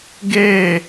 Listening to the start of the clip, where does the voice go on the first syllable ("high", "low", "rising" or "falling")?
falling